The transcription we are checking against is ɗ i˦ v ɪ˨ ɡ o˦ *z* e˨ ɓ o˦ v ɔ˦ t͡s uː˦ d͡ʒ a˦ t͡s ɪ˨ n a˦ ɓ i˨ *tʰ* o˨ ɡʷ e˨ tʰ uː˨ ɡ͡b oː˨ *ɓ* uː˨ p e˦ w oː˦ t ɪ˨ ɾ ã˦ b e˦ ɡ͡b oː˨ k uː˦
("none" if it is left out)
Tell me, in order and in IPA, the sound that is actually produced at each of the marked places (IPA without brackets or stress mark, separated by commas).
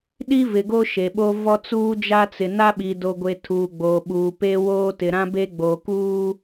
ʃ, d, ɓ